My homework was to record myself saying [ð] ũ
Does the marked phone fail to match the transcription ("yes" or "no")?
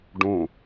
yes